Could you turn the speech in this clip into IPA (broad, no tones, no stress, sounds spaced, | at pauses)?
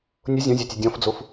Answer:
nʲ ʊ zʲ ɔ̃ zʲ a tʲ ɨ dʲ ɔ̃ f d͡z o f